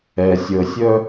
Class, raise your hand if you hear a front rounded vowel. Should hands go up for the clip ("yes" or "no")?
yes